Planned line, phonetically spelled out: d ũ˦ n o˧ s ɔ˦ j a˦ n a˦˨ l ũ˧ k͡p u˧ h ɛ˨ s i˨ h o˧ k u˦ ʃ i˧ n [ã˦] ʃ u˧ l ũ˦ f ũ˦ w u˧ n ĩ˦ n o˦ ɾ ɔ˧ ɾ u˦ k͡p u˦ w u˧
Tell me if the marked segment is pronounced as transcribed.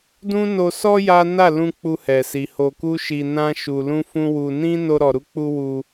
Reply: yes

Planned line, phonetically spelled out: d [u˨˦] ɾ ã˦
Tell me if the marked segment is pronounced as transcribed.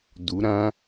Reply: yes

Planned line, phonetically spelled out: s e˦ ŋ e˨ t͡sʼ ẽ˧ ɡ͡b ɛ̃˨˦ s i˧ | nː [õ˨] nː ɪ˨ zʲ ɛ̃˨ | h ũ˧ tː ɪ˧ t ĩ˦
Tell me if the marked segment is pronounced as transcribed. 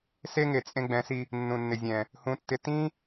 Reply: no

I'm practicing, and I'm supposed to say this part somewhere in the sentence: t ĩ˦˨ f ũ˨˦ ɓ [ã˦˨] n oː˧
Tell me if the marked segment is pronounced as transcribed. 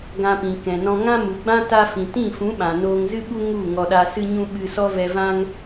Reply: no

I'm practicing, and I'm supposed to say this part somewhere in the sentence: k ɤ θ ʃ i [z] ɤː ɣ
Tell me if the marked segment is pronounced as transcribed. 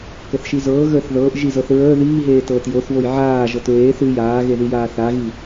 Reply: yes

